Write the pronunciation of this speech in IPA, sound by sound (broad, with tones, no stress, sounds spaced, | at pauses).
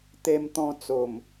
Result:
t̪ e˦ m t̪ ɔ̃˦ t͡s o˨˩ m